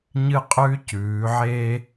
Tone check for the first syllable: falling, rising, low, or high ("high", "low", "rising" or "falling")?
high